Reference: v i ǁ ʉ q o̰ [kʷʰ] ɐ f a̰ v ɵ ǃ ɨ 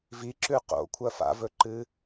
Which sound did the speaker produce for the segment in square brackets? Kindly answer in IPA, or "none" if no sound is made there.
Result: kʷʰ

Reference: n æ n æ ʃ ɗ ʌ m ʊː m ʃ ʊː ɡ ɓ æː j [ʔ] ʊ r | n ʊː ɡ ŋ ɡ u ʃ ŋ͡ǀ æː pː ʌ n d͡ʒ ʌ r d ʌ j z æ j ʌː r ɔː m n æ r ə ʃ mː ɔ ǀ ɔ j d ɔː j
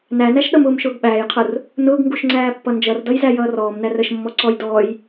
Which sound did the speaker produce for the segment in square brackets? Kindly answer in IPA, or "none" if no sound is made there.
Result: qʰ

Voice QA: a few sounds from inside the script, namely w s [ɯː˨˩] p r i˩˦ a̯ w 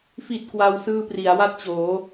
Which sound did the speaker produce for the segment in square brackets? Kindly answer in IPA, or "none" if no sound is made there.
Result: ɯː˥˩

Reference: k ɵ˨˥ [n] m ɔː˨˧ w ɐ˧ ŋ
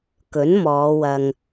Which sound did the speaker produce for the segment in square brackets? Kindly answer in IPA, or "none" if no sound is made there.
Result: n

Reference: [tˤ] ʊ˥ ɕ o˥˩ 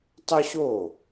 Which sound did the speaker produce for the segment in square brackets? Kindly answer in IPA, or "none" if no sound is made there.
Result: tˤ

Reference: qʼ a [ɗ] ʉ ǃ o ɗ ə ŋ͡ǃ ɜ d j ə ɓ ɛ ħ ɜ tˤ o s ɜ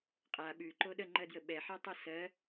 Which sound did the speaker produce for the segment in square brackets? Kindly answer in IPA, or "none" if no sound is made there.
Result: ɓ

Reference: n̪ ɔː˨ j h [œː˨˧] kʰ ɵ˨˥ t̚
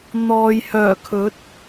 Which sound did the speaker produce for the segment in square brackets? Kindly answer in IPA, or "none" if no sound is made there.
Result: œː˨˩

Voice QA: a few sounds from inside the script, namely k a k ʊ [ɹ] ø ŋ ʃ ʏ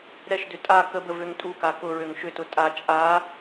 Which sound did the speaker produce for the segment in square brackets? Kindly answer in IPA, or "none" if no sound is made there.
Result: ɹ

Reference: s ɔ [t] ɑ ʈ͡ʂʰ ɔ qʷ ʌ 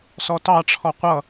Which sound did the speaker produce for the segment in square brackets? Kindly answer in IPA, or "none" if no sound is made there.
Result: t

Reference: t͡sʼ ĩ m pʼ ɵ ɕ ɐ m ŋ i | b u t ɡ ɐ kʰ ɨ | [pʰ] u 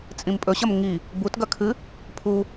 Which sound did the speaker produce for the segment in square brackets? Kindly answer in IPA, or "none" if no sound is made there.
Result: pʰ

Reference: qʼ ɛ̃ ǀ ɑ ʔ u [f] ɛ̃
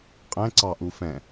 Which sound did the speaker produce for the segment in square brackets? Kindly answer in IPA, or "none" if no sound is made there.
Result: f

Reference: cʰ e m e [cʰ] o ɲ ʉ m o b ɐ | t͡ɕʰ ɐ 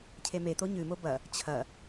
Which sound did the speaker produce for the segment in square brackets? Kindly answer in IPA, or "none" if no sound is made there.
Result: t̪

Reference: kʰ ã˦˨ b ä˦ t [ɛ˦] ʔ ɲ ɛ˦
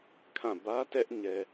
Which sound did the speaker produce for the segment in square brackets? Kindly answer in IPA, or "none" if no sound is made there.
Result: ɛ˦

